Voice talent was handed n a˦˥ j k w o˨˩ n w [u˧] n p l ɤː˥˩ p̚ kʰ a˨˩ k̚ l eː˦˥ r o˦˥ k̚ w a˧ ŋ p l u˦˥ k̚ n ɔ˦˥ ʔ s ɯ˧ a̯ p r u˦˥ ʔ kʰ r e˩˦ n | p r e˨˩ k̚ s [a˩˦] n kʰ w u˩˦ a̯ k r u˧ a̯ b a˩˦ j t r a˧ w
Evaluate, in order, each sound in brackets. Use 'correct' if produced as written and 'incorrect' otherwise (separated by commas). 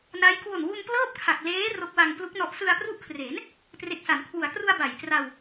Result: correct, correct